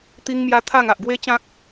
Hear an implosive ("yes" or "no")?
no